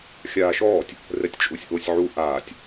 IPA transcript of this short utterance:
xʲ aː ʃ ɔː tʲ | r ɛ tʲ t͡ʃʼ u sʲ ʔ o sʲ ʕ u ʔ aː tʲ

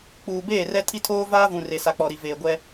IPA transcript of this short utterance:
k͡p uː˨ b eː˦˨ r ɛ˦ tʰ i˦ tʰ oː˦ v aː˦ v ũ˨ r e˨ s a˨ k͡p ɔ˨ ɾ i˨ v eː˨ ɡʷ ɛ˦

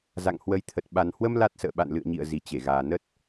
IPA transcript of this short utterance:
z a̰˧˨ ŋ h w ə˨˦ j t̪ʰ ə˨˩ t̚ ɓ a˨˩ n h w ə˧ m l a˦˥ t̚ s ə̰ː˧˨ ɓ a̰˧˨ n l ɨ̰˧˨ ə̯ ɲ ḭ˧˨ ə̯ z i˨˩ t͡ɕ e˧˩ ɣ aː˨˩ n ə˦˥ t̚

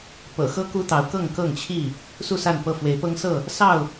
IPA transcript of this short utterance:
p ɤ̰˨˩ x ɤ˦ k u˦ t̪ ɑ˨˦ ʊ̯ k ɤ˥˨ ŋ k ɤ˥˨ ŋ t͡ɕʰ i˥˨ | s u˥˨ s a˥˨ n p ɤ˥˨ f w e˨˦ ɪ̯ p ɤ˦ ŋ s ɤ˥˨ | s ɑ˥˨ ʊ̯

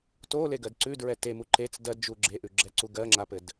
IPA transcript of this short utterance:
t o l e ɡ ɜ d ǀ ʉ d ɹ ɛ t e m u ǃ e t͡s d ɜ d d͡ʒ u ɡ͡ǁ e ʔ ʉ ɡ͡ǁ ɛ ǀ u ɡ ɜ ŋ͡ǁ a p ɘ d

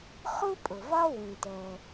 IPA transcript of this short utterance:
χ u˥ pʼ ʊ˩ v ɒ˥ w ũ˩ t ɛ˩

